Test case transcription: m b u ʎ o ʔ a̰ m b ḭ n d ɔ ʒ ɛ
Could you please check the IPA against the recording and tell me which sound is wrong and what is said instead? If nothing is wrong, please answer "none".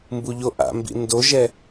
ɔ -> o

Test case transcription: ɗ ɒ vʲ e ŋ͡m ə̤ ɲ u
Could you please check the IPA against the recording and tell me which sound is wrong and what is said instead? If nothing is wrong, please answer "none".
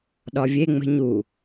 none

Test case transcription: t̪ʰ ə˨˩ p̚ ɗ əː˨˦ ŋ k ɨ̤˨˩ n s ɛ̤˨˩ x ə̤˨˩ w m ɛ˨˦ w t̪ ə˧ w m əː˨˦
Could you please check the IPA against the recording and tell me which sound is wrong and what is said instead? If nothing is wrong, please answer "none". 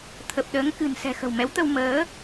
none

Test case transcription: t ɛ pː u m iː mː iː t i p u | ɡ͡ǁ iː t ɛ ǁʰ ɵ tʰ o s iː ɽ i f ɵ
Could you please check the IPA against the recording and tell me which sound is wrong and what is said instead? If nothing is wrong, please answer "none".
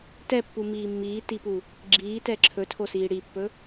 f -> pː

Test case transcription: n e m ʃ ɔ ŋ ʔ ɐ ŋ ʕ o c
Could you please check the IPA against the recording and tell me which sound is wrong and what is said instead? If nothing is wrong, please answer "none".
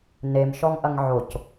none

